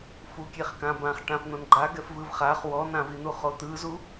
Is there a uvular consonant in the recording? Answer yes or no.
yes